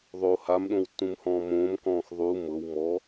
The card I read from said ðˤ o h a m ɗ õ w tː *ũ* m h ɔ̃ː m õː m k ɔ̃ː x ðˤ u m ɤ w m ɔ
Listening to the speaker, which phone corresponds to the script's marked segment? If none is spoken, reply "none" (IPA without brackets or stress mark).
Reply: ũ